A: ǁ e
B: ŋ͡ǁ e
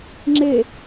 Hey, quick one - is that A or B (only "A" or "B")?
B